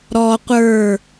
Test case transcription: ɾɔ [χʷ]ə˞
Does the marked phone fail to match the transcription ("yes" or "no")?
yes